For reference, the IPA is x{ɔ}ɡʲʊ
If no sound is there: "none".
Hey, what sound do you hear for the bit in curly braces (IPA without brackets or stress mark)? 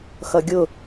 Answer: ʌ